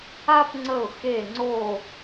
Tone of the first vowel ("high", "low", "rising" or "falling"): high